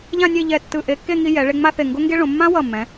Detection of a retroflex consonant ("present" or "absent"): present